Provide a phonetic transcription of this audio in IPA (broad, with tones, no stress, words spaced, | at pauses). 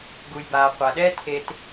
ɡu˨jbaː˨qʷa˨ ɗɛ˦ tʰe˦t